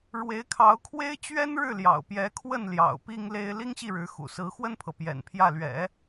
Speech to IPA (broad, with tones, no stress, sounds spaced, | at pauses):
ɻ w e˧˥ ɪ̯ kʰ ɑ˧˥ ʊ̯ kʰ w e˥ ɪ̯ t͡ɕ ɥ ɛ˥ n ɻ ɻ̩˥˩ l j ɑ̰˨˩ ʊ̯ p j ɛ˧˥ kʰ w ə˥˩ n l j ɑ̰˨˩ ʊ̯ p i˥ ŋ l e˥ ɪ̯ l i˥ ŋ ɕ i˥˩ ɻ ɻ̩˧˥ x ṵ˨˩ s ɹ̩˧˥ x w ə˥ n pʰ ɤ˨ p j ɛ̰˨˩ n pʰ j ä˥˩ l ɥ ɛ̰˨˩˦